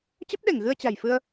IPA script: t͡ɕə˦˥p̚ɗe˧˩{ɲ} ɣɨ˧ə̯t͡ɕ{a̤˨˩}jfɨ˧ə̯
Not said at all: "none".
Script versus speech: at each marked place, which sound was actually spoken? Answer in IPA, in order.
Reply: ŋ, a̤˨˩

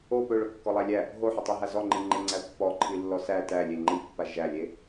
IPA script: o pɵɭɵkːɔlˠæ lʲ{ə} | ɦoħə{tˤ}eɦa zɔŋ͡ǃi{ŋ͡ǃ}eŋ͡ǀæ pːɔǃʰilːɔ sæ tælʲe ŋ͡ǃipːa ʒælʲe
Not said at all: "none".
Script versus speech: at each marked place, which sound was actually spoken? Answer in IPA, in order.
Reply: æ, tˤ, ŋ͡ǃ

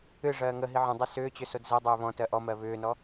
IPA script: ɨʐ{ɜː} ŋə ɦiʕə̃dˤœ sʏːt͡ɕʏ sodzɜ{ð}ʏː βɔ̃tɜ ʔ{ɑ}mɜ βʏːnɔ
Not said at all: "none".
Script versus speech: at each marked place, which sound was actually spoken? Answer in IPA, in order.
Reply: ɜː, dˤ, ɔ

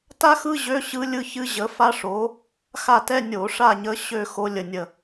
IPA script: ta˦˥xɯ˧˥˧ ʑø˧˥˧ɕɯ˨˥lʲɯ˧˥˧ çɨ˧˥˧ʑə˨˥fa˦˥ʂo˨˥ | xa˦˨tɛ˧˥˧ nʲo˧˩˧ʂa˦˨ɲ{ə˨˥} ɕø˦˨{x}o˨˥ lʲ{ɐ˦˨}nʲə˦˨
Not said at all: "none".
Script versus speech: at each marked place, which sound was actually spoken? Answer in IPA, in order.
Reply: ə˨˥, x, ə˦˨

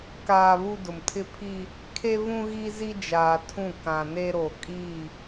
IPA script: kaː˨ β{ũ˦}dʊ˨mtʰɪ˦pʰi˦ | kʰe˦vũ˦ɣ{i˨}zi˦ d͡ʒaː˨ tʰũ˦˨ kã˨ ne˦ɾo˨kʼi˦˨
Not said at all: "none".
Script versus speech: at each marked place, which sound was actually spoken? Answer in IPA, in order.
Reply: u˦, i˦

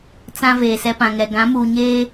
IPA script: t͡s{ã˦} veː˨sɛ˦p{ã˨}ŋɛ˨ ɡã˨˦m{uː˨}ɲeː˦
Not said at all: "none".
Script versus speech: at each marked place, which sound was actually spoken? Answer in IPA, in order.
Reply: ã˦, ã˨, uː˨

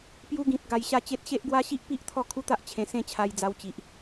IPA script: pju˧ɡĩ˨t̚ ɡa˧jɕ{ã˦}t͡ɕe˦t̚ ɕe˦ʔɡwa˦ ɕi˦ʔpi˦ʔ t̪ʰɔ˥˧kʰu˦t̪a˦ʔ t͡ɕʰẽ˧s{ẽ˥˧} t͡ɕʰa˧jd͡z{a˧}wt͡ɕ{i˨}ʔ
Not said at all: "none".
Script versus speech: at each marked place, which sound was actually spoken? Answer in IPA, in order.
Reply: a˦, ẽ˥˧, a˧, i˨

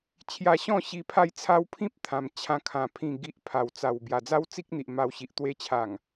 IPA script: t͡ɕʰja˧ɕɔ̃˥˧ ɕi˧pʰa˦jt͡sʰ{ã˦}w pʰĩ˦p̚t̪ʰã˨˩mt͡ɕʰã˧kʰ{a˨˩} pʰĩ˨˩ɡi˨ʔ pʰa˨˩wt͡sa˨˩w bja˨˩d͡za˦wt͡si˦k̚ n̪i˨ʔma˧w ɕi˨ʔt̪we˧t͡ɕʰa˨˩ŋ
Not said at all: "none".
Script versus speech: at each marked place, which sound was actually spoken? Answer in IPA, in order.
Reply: a˦, ã˨˩

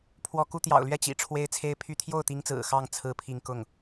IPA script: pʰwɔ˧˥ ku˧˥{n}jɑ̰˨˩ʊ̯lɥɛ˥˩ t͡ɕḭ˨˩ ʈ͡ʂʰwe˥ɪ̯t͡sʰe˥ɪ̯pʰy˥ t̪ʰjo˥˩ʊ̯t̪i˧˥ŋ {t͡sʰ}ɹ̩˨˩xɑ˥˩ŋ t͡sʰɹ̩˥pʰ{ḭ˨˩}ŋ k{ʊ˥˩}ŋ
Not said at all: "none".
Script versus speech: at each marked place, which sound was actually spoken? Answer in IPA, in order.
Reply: t̪, t͡s, i˥˧, ʊ˥˩

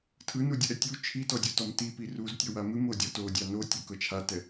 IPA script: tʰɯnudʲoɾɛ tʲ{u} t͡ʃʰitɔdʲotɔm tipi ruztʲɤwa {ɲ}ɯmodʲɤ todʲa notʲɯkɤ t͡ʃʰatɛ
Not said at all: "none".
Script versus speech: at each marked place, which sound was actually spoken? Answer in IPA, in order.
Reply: u, m

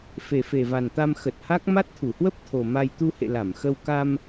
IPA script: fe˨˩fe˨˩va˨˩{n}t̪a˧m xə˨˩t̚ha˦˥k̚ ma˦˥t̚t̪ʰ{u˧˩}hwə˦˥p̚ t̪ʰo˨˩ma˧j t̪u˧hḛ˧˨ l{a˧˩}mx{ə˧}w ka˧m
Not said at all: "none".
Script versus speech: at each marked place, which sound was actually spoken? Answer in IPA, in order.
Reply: n, u˧˩, a˧˩, ə˧

